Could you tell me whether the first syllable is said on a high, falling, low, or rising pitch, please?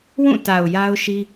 falling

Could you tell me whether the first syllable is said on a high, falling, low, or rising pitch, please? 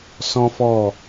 high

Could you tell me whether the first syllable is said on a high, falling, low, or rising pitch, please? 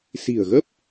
low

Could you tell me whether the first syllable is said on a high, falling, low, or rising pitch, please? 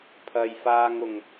low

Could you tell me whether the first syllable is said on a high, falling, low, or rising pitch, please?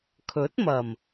rising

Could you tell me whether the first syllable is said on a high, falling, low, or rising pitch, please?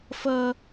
high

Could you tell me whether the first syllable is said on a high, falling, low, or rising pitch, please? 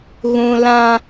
high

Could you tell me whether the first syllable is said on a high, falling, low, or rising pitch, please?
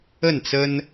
falling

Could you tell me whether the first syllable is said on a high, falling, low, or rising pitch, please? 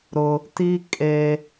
high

